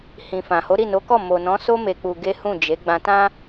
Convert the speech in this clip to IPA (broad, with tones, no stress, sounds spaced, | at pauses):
h ĩ˨ f ã˨ h o˨˦ ɾ i˦˨ n o˨˦ k ɔ˦˨ m o˨ n ɔ̃˨˦ s o˦ m e˧ k͡p u˧ ɡ e˦ h ũ˦˨ d͡ʒ e˨˦ ɡ͡b ã˧ t ã˦